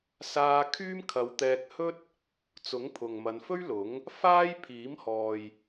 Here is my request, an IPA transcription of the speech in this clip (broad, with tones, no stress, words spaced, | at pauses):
saː˧ kʰyː˥mkʰɐ˨˧wt̪ɛː˧k̚hɵ˥t̚ | t͡sʊ˨˥ŋpʰʊ˨ŋmɐ˨˧nfɵ˥ɥ lʊ˨˥ŋ | faː˥j pʰiː˨˥mhɔː˨j